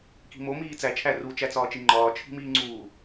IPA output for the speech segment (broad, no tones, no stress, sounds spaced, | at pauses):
k i̤ m o m iː t͡s æ t͡ʃʰ æ r u t͡ʃ æ t͡s ɒː t͡ʃ i ŋ͡ǃ ɒː t͡ʃʰ i̤ m iː ŋ͡ǀ uː